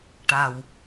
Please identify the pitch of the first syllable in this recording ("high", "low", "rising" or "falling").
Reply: low